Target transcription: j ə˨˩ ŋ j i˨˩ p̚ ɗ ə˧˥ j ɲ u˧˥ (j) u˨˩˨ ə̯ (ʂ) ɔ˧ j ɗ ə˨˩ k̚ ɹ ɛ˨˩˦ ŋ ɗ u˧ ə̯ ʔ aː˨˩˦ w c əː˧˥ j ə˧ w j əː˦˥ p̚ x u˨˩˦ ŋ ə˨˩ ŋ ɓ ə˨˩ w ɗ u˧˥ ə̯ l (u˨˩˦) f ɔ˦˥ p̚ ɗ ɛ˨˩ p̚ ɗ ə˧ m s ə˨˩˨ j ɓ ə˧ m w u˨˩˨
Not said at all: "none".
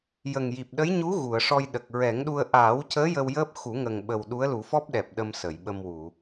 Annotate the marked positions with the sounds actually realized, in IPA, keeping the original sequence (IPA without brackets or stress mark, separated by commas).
ɣ, ʂ, u˨˩˦